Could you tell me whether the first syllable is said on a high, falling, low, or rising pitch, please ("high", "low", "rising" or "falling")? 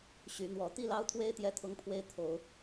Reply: rising